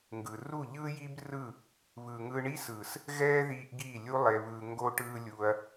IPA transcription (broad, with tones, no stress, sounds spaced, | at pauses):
ŋ ɡ ɯ˨ r u˦˨ ʎ ɯː˦ j i˦ b r ɯ˦˨ | β ɯː˨ ŋ ɯː˧ ɳ i˦ s ɯː˨ s | ɣ ɛː˦ ð iː˧ ʔ ɡ iː˦˨ lʲ u˦ lˠ e˧ β ɯː˧ ŋ ɡ o˦ ʈ ɯː˦ lʲ u˧ ɐ̯